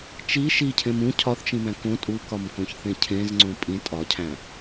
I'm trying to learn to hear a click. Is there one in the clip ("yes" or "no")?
yes